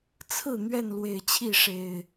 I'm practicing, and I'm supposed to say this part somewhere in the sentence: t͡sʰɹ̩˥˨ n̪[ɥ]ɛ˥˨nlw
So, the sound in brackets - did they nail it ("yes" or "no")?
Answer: yes